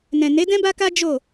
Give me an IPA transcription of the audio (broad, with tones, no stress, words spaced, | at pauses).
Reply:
nɛ̃˨ne˨˦dɛ̃˦ ba˦ka˦ d͡ʒo˦˨